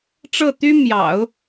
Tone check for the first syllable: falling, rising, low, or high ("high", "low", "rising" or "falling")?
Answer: falling